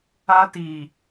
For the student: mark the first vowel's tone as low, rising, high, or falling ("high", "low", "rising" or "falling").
high